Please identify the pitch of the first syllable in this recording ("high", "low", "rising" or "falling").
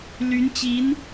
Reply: rising